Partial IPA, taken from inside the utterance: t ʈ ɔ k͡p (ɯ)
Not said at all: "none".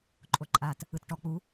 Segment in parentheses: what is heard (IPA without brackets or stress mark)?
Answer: u